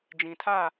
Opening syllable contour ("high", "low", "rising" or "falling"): low